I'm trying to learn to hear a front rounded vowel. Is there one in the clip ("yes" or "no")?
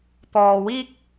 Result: no